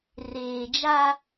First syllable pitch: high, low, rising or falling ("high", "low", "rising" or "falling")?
low